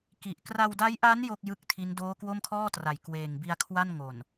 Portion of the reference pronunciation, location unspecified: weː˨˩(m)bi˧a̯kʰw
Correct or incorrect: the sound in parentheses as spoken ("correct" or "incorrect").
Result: incorrect